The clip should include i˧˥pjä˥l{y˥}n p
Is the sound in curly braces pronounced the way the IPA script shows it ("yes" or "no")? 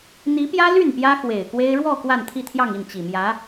no